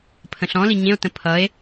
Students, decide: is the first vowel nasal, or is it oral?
nasal